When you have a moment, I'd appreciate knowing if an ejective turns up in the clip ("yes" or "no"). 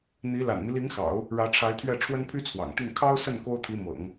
no